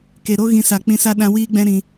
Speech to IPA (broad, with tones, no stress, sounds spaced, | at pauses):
k e˨ ɾ o˦ ɣ ĩ˧ s a˨ k͡p ĩ˧ s a˦ ɗ ã˧ w iː˦ ɡ͡b ɛ̃˦ ɾ ĩ˧